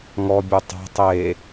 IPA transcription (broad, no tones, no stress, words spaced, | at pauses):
ŋɔbʲu tˤa̤ tˤe